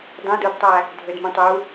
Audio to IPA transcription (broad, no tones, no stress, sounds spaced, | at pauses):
dˤ ẽ d u d tˤ æ | dʱ ø d m ũ tˤ u